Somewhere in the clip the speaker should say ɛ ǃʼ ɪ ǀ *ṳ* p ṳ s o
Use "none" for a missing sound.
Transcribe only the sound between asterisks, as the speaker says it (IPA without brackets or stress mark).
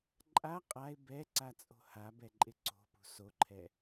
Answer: o̤